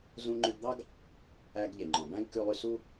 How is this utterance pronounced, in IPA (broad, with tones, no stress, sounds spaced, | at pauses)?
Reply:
z ũ˧ ŋ͡ǃ ʉ˧ ɡ d̪ ɑ˥ ɡ | æ˧ ɡ ʎ e˩ ŋ͡ǃ ɔ̃˩ b æ̃˥ ɡ k ʉ˧ lˠ y˧ s u˥